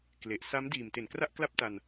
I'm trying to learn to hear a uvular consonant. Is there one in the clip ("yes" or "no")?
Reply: no